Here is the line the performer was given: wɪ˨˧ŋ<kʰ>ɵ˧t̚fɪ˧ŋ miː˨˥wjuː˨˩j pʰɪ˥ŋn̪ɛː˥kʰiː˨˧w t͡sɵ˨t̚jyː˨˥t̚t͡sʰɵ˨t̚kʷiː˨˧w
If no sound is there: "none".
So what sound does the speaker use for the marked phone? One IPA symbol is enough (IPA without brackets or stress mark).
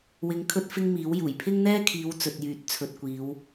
kʰ